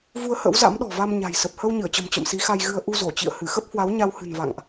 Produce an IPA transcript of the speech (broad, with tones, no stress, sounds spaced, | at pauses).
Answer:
v u˧ ə̯ h ə̰˧˥ w z a̰˧˥ m ɗ ɔ̤˨˩ v a˧ m ɲ a̤˨˩ j s ə˨˩ p̚ h ə˧ w ɲ ɨ˧˩ ə̯ t͡ɕ ə̤˨˩ m t͡ɕ ə̰˧˨ m s i˨˦ x a˧ j ɣ ɨ˧ ə̯ ʔ u˧ z o˧˩ t͡ɕ ḭ˧˨ ə̯ h ɨ˧˩ x ə˦˥ p̚ h w a˨˦ w ɲ a˧ w h ɨ̤˨˩ n v a̰˧˨ ŋ ʔ